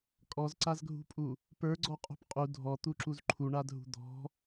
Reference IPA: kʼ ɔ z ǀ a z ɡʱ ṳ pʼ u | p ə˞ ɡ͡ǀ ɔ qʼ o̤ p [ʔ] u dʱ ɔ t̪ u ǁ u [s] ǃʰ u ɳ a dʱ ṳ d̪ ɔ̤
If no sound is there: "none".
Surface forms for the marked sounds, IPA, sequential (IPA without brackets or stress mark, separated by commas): qʼ, z